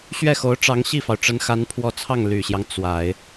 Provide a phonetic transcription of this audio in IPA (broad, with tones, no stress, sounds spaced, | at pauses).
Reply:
ɕ ɥ ɛ˥˩ x o˧˥ ʊ̯ ʈ͡ʂ ɑ˧˥ ŋ ɕ i˥˩ f ɑ˩ ʊ̯ ʈ͡ʂ ə˧˥ n x a˧˥ n pʰ w ɔ˧˥ t͡sʰ ɑ˥˩ ŋ l y˨˩ ɕ j ɑ˦ ŋ t͡s w a˨˩˦ ɪ̯